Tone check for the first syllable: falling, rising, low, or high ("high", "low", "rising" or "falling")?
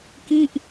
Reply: falling